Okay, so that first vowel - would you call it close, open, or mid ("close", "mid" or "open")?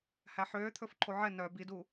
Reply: open